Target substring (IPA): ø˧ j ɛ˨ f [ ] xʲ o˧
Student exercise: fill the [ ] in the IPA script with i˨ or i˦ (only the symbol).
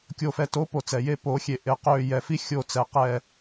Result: i˦